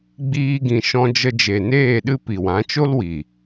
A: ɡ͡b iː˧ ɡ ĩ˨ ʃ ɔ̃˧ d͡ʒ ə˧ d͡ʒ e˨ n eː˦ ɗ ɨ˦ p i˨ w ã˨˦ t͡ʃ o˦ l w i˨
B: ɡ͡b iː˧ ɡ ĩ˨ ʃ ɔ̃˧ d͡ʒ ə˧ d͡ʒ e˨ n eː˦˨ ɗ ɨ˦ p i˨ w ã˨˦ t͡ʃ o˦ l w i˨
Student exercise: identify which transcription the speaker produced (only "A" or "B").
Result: B